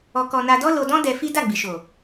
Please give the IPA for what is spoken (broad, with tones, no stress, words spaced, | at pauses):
ɔ˧kɔ˧ na˧dɔ˦ lo˧dɔ̃˦ dɛ˧fi˦ da˦˨ɡ͡bi˨ʃo˨